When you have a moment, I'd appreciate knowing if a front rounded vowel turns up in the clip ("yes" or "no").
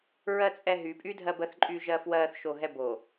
yes